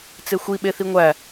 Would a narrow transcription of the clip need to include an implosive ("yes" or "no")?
yes